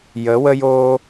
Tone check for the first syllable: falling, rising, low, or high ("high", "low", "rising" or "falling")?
rising